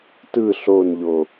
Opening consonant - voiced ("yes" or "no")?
no